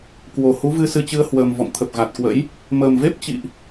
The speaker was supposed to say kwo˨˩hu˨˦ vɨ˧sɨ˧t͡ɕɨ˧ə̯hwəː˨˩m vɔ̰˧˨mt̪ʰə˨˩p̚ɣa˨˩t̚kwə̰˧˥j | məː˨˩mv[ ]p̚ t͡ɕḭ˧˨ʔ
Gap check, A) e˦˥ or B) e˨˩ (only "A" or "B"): A